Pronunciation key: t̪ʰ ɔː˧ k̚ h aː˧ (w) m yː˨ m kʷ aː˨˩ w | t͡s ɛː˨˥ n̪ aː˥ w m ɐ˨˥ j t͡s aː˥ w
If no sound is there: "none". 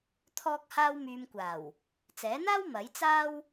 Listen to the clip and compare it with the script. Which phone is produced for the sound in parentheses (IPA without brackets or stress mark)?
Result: w